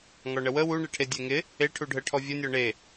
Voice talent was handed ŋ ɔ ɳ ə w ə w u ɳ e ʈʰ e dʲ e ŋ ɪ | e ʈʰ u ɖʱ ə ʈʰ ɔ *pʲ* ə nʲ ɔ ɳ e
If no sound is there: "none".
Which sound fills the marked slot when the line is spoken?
vʲ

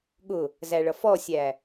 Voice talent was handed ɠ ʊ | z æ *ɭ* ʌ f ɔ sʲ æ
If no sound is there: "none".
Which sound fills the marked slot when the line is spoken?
ɭ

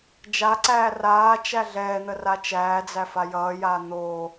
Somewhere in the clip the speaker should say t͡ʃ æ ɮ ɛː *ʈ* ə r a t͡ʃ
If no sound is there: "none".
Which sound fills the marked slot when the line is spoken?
n̪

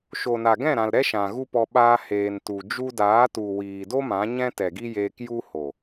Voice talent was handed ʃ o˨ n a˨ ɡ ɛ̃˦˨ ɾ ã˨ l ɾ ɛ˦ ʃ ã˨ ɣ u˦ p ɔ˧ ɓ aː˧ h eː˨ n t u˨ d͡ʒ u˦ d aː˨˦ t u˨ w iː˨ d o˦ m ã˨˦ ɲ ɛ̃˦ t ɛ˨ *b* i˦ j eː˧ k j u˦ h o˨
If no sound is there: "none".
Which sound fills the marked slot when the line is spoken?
ɡ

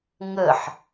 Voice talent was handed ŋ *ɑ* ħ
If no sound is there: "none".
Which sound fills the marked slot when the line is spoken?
ə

